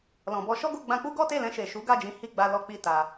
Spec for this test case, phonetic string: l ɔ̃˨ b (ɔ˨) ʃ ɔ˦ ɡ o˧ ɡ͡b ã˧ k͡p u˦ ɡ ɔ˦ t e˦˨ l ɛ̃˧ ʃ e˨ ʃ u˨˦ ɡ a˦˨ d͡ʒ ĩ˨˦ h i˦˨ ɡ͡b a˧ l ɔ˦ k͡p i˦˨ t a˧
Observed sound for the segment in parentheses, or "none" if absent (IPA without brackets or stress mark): ɔ˧